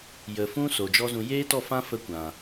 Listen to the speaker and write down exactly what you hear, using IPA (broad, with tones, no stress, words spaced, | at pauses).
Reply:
jə˨fũ˦ so˨d͡ʒɔ˦zũ˧ jeː˦tɔ˦˨fã˦ fə˦kʷã˨